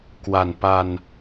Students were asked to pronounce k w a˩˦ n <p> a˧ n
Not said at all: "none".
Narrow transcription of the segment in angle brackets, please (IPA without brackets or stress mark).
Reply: p